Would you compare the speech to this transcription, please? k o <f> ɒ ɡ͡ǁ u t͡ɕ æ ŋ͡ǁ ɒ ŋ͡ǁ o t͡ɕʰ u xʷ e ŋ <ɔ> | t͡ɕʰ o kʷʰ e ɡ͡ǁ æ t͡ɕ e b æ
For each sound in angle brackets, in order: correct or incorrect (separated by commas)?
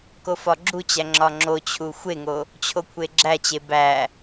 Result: correct, incorrect